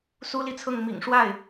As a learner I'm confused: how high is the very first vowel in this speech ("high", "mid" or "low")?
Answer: high